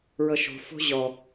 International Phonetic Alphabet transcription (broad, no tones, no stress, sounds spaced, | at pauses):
ɹ ɤ ʃ o̤ f o̤ ʑ ɔ